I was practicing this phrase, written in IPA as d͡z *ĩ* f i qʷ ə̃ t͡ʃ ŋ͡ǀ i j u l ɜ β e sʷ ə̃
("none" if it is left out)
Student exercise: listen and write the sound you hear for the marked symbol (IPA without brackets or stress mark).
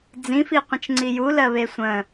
ĩ